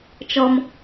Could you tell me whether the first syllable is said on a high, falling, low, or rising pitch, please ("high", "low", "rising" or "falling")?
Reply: high